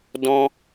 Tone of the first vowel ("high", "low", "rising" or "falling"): high